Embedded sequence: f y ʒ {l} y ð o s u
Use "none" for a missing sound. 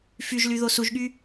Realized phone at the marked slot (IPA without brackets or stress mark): l